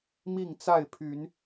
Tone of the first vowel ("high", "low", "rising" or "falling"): falling